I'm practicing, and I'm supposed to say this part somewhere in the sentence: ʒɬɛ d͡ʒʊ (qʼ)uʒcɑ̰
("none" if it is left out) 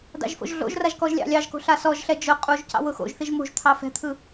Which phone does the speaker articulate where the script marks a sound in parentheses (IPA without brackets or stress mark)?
qʼ